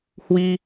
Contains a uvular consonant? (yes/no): no